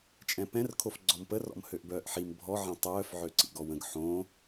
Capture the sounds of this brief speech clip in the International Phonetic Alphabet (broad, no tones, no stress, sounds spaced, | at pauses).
t͡ʃʼ ɛ̃ p ɛ̃ r kʰ o f ɡ͡ǀ ɔ m p ə r ɔ̰ m h ø ʔ b œː ʔ ħ i m bʱ ɔ ʕ ɛ̃ tˤ œː f ʕ ø ǀ ḭ ɡ ɔ w ə̃ ɡ ħ õ